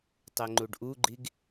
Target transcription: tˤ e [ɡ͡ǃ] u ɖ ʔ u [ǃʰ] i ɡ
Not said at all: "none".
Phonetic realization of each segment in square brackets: ŋ͡ǃ, ɡ͡ǃ

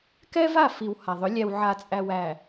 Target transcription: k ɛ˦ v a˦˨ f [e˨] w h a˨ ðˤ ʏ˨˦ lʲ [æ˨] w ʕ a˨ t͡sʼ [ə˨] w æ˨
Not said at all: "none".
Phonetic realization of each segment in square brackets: i˨, æ˨, æ˨

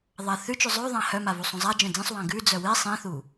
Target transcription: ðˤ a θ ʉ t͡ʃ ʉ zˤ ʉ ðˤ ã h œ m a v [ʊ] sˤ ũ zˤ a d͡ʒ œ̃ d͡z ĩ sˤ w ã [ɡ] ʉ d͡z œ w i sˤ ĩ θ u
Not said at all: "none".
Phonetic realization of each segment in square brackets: u, ɡ

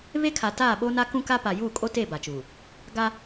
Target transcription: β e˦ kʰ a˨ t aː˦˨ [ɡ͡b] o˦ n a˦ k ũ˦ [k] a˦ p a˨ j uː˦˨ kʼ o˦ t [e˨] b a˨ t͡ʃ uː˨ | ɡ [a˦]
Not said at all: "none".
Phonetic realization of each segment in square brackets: ɓ, k, e˦˨, a˦

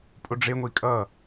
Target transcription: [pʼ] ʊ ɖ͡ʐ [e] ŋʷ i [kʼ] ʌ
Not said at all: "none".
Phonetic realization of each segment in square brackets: pʼ, e, kʼ

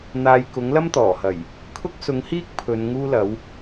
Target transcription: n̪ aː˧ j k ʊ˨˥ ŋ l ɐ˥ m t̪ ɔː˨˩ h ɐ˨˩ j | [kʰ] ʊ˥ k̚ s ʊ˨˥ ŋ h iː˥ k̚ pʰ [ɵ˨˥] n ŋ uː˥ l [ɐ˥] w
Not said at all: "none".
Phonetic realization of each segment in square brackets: kʰ, ɵ˨˧, ɐ˨˥

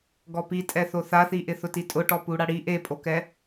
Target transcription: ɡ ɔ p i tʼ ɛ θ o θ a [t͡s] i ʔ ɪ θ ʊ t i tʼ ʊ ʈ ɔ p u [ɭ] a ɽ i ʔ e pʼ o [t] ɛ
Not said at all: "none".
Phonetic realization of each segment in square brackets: θ, ɽ, k

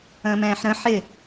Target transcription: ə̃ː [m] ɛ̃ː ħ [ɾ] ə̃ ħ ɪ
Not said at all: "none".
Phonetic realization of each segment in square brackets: m, ɾ

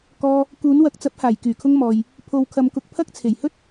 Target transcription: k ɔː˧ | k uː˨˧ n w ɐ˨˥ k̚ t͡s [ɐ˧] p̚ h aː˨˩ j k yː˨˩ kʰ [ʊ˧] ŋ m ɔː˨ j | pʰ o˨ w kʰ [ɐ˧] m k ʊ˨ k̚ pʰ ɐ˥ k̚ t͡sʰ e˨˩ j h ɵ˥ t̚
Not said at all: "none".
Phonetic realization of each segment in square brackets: ɐ˨˥, ʊ˧, ɐ˨

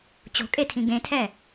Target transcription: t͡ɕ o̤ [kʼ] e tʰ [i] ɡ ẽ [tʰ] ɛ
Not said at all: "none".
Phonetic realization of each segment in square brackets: kʼ, ĩ, tʰ

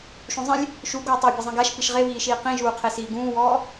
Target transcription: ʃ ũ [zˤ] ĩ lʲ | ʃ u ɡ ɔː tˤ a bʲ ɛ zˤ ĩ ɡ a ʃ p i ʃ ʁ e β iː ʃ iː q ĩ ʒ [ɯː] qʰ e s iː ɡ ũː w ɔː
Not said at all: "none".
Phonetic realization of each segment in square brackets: zˤ, uː

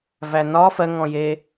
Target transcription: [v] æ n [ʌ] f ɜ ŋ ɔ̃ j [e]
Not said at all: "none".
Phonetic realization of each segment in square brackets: v, ɒ, e

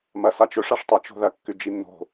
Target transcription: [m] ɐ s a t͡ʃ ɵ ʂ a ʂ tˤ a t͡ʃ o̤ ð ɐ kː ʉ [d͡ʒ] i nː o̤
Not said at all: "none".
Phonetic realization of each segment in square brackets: m, d͡ʒ

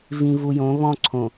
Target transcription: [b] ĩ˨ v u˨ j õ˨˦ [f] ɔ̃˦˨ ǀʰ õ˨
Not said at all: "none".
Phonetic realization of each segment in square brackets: v, β

